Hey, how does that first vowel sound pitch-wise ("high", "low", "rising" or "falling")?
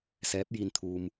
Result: rising